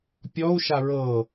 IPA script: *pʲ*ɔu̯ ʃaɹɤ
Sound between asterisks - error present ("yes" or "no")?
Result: no